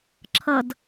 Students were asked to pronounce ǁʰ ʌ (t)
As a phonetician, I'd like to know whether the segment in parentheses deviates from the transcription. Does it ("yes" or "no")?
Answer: yes